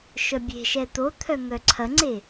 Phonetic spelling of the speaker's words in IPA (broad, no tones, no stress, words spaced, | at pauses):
ʃœbʲe̤ʃɛ t̪o t̪ʰœŋœǀʰɐŋ͡ǀe